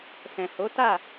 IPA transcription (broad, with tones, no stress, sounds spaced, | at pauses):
s ɛ̃˨ h o˨˦ t a˦˨